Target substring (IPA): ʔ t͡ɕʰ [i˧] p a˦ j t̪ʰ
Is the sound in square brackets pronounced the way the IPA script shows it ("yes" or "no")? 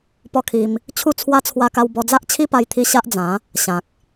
no